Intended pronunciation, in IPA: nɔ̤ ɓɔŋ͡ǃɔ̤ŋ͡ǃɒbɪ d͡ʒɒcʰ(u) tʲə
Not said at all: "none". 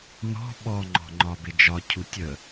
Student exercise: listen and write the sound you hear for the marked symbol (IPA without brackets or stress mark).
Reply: u